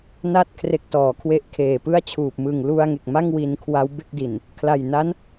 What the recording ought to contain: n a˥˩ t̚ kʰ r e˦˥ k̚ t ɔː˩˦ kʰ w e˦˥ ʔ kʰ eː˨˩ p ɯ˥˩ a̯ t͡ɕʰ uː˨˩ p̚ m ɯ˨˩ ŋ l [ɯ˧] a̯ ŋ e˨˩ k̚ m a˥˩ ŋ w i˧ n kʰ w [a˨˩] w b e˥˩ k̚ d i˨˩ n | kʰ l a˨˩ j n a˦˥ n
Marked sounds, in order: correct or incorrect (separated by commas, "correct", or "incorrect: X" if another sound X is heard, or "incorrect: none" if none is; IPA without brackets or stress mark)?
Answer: incorrect: u˧, incorrect: a˦˥